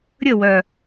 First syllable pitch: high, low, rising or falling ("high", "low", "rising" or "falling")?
falling